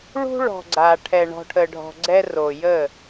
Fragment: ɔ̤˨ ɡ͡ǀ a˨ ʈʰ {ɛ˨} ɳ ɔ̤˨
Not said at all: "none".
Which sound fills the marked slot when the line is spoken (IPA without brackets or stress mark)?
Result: ɛ˨